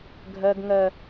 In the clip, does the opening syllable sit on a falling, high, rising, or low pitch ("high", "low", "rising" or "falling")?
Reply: high